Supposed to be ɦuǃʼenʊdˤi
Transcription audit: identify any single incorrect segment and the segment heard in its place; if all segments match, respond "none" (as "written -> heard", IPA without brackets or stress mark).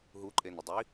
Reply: none